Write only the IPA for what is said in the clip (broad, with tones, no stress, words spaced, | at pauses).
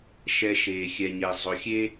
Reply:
ʃɛ˧ ʃeː˧xʲɛ˧ɲɛ˧ zˤʊ˧xʲe˥